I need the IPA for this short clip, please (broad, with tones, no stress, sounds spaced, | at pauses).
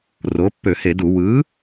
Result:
r o˩˥ pː ø˧˩˧ h e˧˩˧ d u˧˩˧ w ɯ˩˥